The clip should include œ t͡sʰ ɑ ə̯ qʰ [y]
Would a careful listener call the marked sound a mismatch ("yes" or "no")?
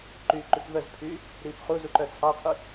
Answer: no